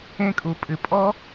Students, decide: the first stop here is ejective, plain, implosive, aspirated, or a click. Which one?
ejective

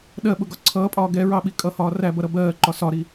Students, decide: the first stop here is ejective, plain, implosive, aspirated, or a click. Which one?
implosive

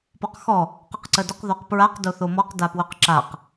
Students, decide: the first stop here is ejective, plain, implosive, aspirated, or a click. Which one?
plain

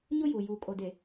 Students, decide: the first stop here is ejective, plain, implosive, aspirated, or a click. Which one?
ejective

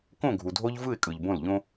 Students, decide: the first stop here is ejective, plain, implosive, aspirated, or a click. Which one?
plain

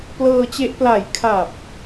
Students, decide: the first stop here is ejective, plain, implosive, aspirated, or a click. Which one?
plain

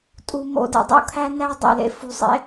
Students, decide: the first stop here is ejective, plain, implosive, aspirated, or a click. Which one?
ejective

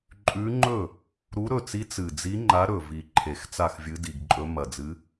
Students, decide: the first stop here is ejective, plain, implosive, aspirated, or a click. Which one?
click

